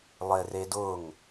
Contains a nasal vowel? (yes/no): no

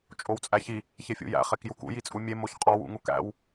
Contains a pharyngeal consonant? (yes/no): no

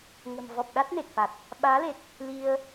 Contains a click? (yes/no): no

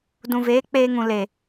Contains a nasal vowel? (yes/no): yes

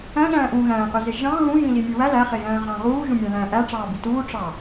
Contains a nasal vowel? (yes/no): yes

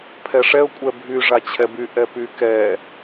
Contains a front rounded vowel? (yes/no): yes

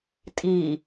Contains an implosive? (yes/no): no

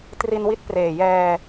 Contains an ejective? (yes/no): no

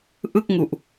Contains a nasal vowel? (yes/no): no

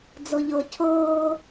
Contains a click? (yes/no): no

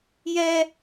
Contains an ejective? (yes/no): no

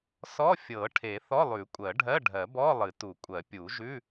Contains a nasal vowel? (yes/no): no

